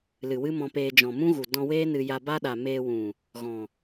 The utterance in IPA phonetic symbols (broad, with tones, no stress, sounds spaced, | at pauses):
l ɨ˨ w ɨ˦ m ɔ̃˧ p eː˧ d͡ʒ ɔ̃˨ m ũ˦ ɣ u˨ d ɔ̃˧ w eː˦ n ɨ˧ j a˧ b a˦ ɗ a˨ m eː˧ w ũ˨ | ɣ ɔ̃˨